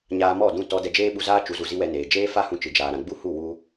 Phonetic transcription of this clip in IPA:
ɲ aː˧ m ɔ˦˨ d ũ˦˨ t ɔ˧ d ɛ˧ d͡ʒ eː˦ ɓ u˧ z aː˦ t͡ʃ u˨˦ z u˨ z i˦ w ɛ˧ n eː˨ d͡ʒ eː˦ f a˦ h ũ˧ t͡ʃ ɨ˨ d͡ʒ aː˨ ɾ ã˨ ɡ͡b u˦ h u˦˨ w u˦

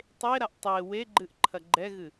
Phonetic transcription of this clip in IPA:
tˤ e ɾ a ʔ tˤ e w e ɡ͡ǃ ɨ ʔ ǃʰ ɐ ɡ͡ǃ ɛ ɣ ɨ

